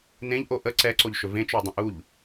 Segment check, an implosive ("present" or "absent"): absent